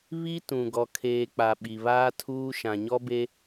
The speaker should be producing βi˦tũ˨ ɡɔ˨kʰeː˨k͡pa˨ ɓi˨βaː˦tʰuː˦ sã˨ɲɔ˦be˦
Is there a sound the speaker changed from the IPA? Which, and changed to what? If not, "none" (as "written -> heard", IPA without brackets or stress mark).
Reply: s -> ʃ